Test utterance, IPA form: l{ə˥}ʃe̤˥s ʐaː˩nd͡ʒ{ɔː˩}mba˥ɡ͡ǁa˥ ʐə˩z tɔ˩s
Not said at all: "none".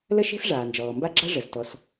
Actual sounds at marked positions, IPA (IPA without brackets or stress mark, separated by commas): ə˥, ɔː˩